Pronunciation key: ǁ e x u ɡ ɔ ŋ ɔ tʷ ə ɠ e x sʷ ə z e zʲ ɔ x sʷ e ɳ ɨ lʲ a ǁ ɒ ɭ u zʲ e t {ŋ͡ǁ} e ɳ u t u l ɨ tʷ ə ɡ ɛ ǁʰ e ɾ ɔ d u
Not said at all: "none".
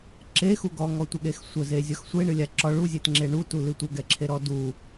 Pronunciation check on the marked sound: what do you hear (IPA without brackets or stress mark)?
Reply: ŋ͡ǁ